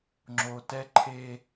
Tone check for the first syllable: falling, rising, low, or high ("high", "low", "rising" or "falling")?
low